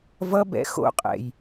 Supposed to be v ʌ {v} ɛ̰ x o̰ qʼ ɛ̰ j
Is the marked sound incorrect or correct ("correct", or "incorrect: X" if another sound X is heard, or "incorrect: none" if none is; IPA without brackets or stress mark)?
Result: incorrect: b